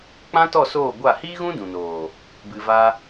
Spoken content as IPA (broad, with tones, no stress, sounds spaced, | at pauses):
k͡p ã˦ t ɔ˦˨ s oː˦˨ ɡʷ a˦˨ h iː˦ ɣ ũ˦ d ũ˨ n oː˨ | b ɨ˨ v a˧